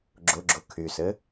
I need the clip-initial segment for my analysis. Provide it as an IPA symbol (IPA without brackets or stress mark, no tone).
ɡ͡ǁ